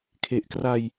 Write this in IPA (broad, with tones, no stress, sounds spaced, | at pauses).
kʰ e˨˩ ʔ k r a˧ j